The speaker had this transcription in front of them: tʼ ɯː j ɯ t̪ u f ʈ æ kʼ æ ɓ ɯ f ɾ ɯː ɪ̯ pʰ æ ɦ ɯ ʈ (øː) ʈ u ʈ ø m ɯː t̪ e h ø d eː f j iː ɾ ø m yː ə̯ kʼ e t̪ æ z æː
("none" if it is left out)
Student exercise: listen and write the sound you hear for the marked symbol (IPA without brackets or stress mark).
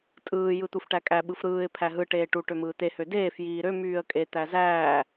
eː